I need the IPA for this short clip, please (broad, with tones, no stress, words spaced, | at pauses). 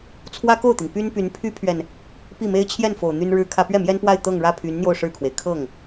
t͡sʰwä˥ko˥˩ʊ̯t̪i˩n py˥n py˧˥npʰy˥pʰɥɛ˨n | pi˥˩me˥ɪ̯ t͡ɕʰjɛ˥˩nfo˨˩ʊ̯ n̪y˥nɻɻ̩˥kʰä˥ pɥɛ˥˩mjɛ˥npwa˥˧ɪ̯ t̪ɤ˥˧ŋɻä˥˩pʰy˧˥nn̪jo˥˧ʊ̯ ʂɻ̩˥˩kʰwe˩ɪ̯ kʰɤ˥˩ŋ